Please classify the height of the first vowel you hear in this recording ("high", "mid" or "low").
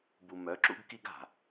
high